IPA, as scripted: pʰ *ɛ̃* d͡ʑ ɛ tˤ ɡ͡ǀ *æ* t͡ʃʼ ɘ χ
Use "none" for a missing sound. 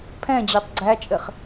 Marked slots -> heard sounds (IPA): ɛ̃, æ

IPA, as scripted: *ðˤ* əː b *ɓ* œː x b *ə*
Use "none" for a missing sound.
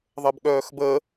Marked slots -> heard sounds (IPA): ðˤ, ɠ, əː

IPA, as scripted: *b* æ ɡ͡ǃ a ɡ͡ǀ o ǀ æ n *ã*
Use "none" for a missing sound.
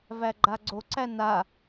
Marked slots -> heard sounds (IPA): v, a

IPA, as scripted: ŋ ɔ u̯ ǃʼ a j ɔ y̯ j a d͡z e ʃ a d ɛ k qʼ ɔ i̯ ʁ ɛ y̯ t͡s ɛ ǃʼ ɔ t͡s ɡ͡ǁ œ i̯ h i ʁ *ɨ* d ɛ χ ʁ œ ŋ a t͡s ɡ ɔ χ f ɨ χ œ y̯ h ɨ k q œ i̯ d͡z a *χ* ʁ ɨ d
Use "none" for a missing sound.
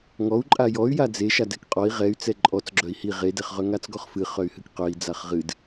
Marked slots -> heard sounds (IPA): e, χ

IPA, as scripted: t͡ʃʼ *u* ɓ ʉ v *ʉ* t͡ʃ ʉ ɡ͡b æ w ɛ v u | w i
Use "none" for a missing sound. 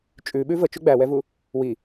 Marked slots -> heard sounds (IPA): ʉ, ə

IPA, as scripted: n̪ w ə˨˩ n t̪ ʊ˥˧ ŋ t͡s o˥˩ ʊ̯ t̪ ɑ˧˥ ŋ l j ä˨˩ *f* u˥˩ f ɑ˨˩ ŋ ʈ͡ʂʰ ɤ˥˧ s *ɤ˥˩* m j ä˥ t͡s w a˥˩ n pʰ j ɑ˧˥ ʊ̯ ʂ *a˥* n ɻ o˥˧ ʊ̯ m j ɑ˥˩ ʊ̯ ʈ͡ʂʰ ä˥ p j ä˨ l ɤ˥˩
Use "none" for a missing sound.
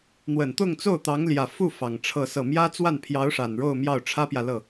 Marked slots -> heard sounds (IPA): f, ɤ˥˩, a˨˩

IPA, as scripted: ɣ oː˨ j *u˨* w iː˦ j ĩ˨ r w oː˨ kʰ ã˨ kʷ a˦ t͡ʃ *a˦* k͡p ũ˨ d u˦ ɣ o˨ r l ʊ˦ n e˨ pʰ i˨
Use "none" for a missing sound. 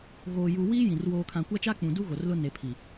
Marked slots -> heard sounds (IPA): u˨, a˦

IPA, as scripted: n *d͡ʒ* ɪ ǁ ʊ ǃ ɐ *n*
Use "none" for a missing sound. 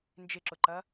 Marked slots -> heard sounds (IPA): d͡ʒ, none

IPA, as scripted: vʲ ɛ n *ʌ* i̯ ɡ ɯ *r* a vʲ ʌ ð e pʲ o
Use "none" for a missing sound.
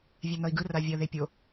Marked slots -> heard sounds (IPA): ʌ, r

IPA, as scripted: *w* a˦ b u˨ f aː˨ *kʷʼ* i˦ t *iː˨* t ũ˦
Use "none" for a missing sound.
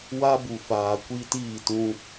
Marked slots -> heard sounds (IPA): w, kʷ, iː˦˨

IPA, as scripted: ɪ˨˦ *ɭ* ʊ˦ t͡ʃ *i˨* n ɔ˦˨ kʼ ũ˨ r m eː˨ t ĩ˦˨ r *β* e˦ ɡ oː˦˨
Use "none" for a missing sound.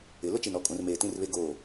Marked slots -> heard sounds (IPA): l, i˨, β

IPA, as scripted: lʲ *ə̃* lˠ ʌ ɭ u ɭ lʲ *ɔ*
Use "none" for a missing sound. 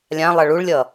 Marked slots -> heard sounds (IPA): ã, ʌ

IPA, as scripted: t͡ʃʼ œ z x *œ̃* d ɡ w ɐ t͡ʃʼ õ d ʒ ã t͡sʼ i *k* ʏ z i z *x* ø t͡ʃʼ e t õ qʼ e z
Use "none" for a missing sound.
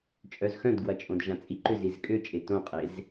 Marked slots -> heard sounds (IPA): œ̃, ǃ, kʼ

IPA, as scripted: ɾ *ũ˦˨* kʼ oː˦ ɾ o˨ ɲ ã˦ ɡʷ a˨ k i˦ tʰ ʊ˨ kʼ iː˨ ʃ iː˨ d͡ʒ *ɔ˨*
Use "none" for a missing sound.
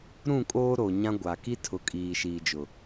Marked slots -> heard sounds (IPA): ũ˦˨, ʊ˨

